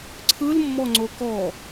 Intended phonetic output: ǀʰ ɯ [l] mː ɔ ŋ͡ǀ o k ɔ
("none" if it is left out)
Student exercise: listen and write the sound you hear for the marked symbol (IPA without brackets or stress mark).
l